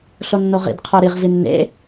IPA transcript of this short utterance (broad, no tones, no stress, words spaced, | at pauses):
ɬonːoʁḭd qʰə˞ɾiʁ vinːḛ